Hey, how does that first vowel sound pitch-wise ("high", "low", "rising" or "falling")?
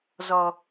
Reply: low